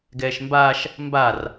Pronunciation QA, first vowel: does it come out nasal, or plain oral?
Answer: oral